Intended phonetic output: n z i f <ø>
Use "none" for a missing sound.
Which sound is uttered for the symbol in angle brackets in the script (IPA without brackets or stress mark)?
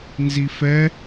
ɛ